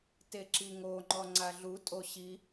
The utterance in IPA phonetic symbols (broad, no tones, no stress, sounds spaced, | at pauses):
t e ǁ i ŋ o ŋ͡ǃ ɔ ŋ͡ǀ a ɮ u tʼ o ɕ i